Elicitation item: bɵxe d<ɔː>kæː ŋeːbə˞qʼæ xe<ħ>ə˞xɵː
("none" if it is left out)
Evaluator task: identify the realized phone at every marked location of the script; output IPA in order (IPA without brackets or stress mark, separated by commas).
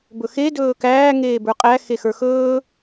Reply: ɵː, x